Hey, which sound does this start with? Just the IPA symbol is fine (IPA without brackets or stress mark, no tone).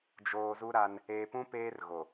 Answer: d͡ʒ